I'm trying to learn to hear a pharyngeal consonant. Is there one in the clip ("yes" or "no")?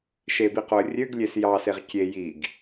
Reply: no